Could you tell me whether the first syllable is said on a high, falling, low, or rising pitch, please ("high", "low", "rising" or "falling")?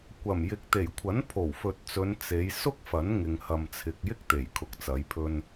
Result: low